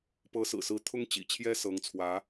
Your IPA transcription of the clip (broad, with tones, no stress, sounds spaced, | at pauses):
p ɤ˧˥ s ɹ̩˨˩ s ɹ̩˧˥ t̪ʰ ʊ˥ ŋ t͡ɕ ḭ˨˩ t͡ɕʰ j ɛ˥ s ɤ˧˥ ŋ t͡sʰ w ä˧˥